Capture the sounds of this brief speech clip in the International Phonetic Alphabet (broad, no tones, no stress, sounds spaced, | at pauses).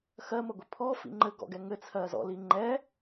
x ɜ m ə ɡʷ i pʰ ɔ f ḭ ŋ͡ǃ ɘ ɡ ɔ̰ ɡ ɛ ŋ ɘ t͡sʰ ɜ z ɔ̰ l i ŋ͡ǃ ɛ